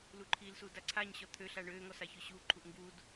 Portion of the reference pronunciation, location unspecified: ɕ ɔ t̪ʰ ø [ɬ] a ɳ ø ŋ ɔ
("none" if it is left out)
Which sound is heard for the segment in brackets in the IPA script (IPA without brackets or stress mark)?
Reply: ɬ